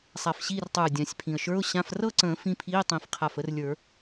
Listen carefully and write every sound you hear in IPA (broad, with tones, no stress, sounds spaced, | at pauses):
sˤ a˧˩ f ɕ iː˥˧ r tˤ ə˞˧˩ ʊ̯ dʲ ã˨˩˦ sʲ pʰ ĩ˩ ə̯ ʃ ə˞˧˥˧ ʊ̯ ɕ ã˧˥˧ f r ɤ˥˧ ǀ ə̃ː˨˩˦ f ĩ˧˥˧ pʰ iː˧˥˧ tˤ ĩ˨˩˦ f qʰ a˧˩ f ə˦˥ r lʲ ə˞˨˩˦